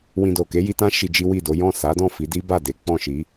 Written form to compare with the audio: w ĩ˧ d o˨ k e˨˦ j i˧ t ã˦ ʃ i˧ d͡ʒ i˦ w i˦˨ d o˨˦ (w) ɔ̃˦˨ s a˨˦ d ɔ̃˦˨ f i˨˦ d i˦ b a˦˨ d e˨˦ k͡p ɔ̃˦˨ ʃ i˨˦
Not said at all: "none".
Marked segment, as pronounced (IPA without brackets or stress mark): j